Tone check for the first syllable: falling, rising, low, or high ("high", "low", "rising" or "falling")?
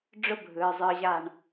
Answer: high